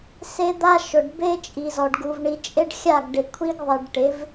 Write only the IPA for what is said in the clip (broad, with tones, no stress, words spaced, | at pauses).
se˦d̪a˦ ʃʊ˨ɖbe˦t͡ʃʼi˨zɔ˨ɖ ɡu˨vɳi˨t͡ʃʼe˦ɖxʲa˦˨ɡ ɖɪ˨kʷʰi˦ɡ ðˤe˨ɖʈɪ˨˦v